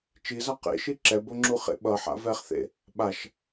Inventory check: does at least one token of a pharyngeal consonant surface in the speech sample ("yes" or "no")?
yes